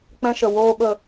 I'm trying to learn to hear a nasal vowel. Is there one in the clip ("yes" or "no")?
yes